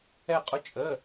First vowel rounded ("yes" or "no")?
no